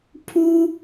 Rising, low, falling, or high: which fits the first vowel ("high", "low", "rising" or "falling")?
high